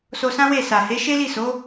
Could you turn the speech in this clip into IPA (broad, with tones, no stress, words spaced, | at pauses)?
so˧sã˦we˦˨ sa˨he˨˦ʃe˦ li˦˨so˨˦